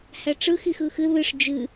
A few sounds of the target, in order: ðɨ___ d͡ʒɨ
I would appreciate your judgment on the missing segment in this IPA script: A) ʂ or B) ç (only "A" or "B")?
A